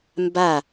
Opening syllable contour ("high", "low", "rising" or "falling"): falling